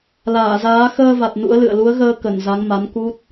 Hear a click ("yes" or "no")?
no